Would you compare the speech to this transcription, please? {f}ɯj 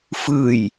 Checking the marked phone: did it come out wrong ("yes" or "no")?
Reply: no